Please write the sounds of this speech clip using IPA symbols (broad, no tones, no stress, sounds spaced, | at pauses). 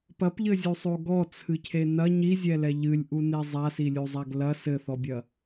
p ɐ p ʎ ɘ zʲ u sˤ o ɡ ɔ t͡sʰ ɨ cʰ e n ɐ ɲ i zʲ ɛ l ɛ ʎ ɨ lʲ ʔ u n e zˤ a s i lʲ u zˤ a ɡ l ɐ s ɘ θ ɔ bʲ ɐ